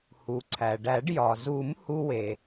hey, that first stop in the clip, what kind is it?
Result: click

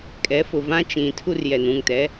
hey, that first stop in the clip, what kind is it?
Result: ejective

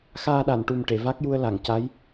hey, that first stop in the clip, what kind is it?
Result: implosive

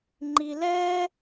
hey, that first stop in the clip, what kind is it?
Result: click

